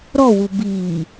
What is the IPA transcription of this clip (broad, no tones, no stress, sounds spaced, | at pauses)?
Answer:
ɾ ɔ w u b iː